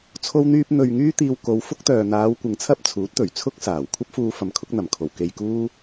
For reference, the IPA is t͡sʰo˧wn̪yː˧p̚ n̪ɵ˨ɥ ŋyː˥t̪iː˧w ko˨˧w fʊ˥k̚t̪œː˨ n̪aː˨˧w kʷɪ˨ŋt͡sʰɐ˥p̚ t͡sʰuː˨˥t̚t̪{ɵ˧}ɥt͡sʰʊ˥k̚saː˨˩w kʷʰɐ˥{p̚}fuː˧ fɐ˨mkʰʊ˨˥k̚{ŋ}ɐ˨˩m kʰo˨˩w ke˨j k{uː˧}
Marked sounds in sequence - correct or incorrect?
incorrect: ɵ˨˩, correct, incorrect: n̪, incorrect: uː˥

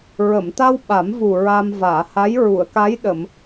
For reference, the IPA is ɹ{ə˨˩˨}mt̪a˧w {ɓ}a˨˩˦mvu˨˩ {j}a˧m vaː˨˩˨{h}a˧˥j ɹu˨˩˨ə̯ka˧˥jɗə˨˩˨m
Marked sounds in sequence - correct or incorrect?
correct, correct, incorrect: ɹ, correct

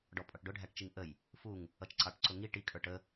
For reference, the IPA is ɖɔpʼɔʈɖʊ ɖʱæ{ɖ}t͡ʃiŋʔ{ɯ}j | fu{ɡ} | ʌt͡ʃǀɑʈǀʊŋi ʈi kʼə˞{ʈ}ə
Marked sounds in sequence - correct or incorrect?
incorrect: ʈ, incorrect: ə, incorrect: ŋ, correct

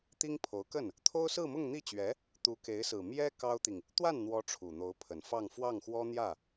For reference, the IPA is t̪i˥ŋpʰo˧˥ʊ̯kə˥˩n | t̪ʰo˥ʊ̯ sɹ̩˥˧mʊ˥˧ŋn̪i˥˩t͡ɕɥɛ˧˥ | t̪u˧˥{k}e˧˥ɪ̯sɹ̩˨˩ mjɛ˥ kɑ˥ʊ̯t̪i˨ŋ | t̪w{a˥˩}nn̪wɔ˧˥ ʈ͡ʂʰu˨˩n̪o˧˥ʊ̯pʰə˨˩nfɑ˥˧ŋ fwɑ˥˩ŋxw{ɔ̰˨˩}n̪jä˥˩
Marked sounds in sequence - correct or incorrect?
correct, correct, incorrect: ɔ˥

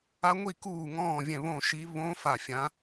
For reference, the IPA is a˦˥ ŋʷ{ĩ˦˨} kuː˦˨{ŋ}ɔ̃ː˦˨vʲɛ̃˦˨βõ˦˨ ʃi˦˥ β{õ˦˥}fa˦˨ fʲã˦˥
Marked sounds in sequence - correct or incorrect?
incorrect: i˦˨, correct, correct

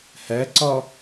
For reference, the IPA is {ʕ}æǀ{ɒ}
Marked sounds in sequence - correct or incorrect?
incorrect: h, correct

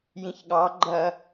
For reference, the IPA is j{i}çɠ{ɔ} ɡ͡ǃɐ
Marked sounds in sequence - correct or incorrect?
incorrect: ĩ, incorrect: ɑ

